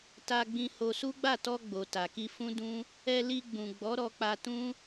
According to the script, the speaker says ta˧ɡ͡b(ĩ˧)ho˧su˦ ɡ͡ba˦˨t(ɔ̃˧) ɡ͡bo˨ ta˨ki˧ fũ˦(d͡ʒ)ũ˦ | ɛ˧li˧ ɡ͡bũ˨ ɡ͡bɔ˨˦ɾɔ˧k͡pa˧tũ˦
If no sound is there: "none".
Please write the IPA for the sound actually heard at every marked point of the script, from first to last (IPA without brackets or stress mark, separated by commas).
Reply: ĩ˧, ɔ˧, d